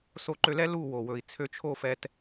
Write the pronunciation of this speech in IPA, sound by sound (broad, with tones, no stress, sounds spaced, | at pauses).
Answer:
s o˨ ǃ ø˨ l ɛ˧ l u˦˨ w o˨ w ɵ˨ i̯ t͡sʰ ø˧ t͡ʃʰ o˦˨ f ɛ˧ t